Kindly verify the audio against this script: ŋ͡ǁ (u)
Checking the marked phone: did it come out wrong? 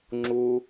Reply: no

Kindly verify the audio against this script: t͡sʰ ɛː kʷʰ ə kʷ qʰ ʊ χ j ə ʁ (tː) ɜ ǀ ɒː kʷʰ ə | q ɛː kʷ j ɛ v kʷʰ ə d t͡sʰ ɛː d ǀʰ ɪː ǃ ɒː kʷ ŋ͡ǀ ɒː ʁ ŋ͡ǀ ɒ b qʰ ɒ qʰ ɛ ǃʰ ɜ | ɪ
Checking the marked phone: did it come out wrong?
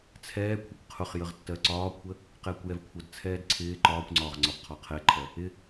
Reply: no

